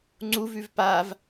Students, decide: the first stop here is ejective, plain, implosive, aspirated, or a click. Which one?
click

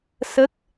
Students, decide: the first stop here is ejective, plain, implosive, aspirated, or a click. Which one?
plain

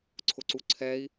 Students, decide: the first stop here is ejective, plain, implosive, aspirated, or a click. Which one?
click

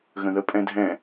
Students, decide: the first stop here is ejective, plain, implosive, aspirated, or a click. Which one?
ejective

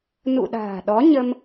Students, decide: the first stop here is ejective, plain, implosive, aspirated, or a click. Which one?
implosive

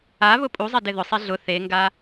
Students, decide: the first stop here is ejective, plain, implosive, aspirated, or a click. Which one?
ejective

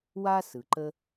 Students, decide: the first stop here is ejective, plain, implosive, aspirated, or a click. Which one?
click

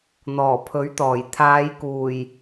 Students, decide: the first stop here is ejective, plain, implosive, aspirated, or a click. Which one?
aspirated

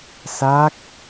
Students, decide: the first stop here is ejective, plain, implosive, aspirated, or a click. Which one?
plain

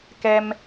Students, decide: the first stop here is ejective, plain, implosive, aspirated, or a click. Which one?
plain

